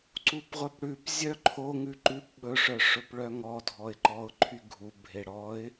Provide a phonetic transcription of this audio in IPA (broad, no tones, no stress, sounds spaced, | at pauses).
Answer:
ǀ u p ʁʷ œ p ɽ ʉ p zʲ œ ǃʰ o ŋ ʉ ǃ ʉ p ɓ ɵ ʂ œ ʂ ɵ p ɭ œ ŋ ɔ dʱ ɔ ɪ̯ ǃ ɔ ʊ̯ ǃʰ y ɡʱ u bʱ e ɽ ɔ ɪ̯